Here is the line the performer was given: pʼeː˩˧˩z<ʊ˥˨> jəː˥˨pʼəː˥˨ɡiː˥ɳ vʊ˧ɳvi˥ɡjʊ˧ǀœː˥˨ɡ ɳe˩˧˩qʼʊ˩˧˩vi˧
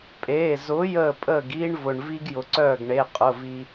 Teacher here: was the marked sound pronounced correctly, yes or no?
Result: no